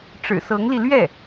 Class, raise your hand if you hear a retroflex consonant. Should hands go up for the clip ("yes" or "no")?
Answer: yes